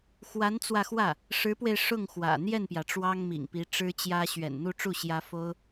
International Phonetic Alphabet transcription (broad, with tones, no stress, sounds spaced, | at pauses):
x w a˧˥ n t͡s w ä˧ x w ä˥˩ | ʂ ɻ̩˧˥ p w e˧ ɪ̯ ʂ ʊ˥˩ ŋ x w ä̰˨˩ n̪ j ɛ˥˩ n p j ä˩ ʈ͡ʂ w ɑ˥ ŋ m ḭ˨˩ ŋ p i˧˥ ʈ͡ʂ ɻ̩˥ t͡ɕ j ä˥ ɕ ɥ ɛ̰˨˩ n n̪ u˥˧ ʈ͡ʂ u˥˩ ɕ j ä˥ f o˥ ʊ̯